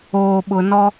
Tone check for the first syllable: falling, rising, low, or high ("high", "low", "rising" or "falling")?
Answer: low